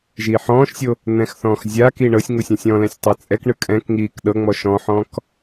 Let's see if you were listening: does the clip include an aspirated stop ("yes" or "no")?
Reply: no